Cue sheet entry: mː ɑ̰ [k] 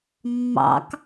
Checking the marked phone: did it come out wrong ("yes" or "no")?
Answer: no